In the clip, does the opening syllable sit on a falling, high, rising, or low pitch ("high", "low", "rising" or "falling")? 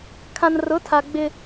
low